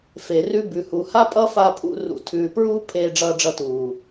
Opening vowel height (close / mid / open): mid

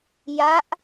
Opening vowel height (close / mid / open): open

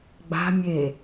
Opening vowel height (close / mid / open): open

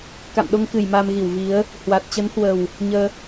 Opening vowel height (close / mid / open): open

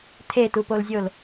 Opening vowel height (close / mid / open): mid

